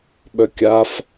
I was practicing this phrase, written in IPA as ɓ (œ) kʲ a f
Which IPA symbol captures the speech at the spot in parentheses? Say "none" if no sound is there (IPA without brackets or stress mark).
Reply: œ